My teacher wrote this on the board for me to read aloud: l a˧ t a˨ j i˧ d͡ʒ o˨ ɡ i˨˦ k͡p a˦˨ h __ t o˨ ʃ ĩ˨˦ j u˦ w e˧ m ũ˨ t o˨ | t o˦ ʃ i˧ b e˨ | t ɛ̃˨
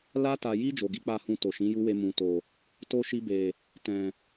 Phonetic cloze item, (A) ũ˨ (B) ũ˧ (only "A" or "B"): B